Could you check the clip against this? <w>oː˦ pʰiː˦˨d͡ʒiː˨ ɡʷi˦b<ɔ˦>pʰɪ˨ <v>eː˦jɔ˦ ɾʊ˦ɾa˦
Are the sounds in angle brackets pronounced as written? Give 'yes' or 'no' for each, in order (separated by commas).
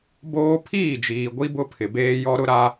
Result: no, no, no